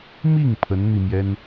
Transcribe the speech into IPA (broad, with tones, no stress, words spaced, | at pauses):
mi˥˩ŋ pʰə˧˥nn̪i˧mjɛ˥n